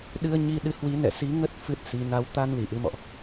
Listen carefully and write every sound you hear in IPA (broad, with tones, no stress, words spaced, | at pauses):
ɗɨ˧ə̯ ɲi˧ɗɨ˨˦ hwi˨˦nɛ̰˧˨si˨˦ŋə˦˥t̚ fɨ˦˥t̚si˨˦ na˨˦w t̪a˧nli˧˩ ʔɨ˧mɔ̰˧˨ʔ